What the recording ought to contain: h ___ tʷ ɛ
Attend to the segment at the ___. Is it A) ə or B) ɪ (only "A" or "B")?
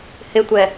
B